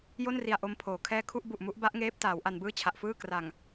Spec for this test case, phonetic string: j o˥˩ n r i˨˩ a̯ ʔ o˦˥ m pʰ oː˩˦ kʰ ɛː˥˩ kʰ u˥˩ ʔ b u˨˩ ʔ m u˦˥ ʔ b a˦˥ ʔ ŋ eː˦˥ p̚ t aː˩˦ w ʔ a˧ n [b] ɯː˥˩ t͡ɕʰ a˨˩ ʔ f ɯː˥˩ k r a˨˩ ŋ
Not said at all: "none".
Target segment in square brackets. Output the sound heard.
b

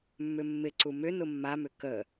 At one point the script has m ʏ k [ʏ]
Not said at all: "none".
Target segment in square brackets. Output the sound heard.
ə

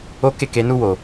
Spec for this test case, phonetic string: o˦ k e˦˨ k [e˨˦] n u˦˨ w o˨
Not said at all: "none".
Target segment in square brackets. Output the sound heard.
e˨˦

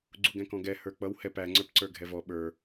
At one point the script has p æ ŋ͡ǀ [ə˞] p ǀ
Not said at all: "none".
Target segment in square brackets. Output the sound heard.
ə˞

